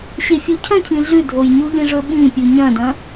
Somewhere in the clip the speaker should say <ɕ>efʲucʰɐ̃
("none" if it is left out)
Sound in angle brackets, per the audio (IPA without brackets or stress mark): ɕ